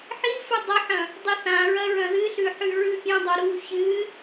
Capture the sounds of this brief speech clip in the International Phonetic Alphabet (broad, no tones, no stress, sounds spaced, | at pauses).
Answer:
ħ i f ɨ dˤ ɐ ħ ɐ̃ | dˤ i θ ã ɹ ɐ ɹ ɐ̃ ð ɨ ɬ ʉ ħ ʉ ɹ ʉ pʲ ɐ̃ dˤ o ɾ u ç ɨ